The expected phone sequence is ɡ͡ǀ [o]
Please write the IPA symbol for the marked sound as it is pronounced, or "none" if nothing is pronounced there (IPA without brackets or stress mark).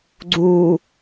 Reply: u